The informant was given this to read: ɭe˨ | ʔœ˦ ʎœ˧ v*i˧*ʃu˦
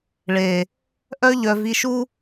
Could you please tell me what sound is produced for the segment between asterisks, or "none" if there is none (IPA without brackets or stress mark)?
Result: i˧